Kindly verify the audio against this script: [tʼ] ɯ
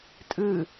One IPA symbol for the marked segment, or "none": tʼ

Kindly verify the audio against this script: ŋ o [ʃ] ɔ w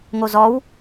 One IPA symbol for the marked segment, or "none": z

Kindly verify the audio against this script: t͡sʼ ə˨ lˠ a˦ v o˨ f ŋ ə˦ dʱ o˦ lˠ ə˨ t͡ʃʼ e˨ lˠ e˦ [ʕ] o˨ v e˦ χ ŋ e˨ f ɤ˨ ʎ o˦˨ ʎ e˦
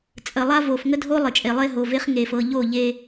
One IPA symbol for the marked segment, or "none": ɦ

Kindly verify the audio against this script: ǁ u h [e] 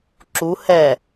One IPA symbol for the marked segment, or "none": ɛ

